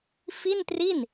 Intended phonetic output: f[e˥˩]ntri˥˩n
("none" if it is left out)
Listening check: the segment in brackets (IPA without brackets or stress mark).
i˥˩